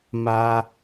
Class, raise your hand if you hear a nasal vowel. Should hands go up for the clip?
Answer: no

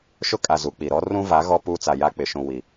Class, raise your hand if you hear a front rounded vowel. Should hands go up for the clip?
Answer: no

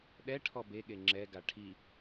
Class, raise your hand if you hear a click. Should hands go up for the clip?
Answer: yes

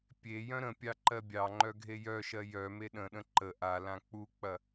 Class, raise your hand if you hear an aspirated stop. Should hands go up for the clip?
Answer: no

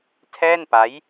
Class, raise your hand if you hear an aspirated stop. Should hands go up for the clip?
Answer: yes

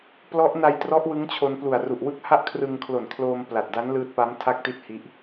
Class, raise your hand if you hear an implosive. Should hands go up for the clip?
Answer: no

